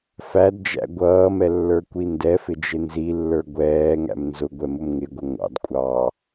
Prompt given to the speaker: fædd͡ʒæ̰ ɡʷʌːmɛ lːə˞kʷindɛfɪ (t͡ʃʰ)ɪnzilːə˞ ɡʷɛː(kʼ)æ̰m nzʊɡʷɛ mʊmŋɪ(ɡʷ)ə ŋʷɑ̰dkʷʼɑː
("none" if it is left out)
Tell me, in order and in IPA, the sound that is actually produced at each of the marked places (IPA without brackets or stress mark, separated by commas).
d͡ʒ, ŋ, ɡʷ